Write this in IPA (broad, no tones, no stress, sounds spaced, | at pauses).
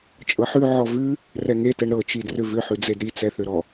t͡ʃʼ ɤ ħ ʉ ʕ ɔ v ʉ | r ɛ ŋ e t ɛ ɳ ɾ ɤ t͡ʃ i d r ʏ v ʏ ħ ʉ d͡z e d ɾ i t͡s ɛ θ ʏ ɾ ɔ